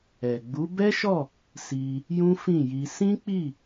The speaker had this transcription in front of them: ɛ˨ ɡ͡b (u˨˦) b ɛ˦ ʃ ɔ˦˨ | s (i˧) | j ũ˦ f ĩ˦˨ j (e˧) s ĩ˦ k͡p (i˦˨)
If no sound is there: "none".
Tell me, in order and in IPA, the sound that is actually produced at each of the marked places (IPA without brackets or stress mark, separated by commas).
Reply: u˨˦, i˧, i˧, i˦˨